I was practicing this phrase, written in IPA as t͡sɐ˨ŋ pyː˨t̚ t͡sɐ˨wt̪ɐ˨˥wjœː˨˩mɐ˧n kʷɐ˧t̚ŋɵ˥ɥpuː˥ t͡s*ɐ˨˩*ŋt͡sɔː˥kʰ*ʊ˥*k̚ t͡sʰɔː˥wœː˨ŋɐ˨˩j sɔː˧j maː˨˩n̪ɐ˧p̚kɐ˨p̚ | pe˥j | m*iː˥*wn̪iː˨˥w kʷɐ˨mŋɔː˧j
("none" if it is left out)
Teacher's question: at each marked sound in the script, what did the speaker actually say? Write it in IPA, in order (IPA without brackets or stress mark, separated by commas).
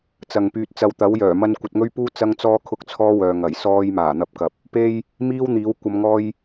ɐ˥, ʊ˥, iː˥